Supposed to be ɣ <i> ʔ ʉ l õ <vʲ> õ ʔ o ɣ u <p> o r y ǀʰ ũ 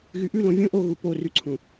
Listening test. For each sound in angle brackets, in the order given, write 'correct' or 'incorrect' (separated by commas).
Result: incorrect, correct, correct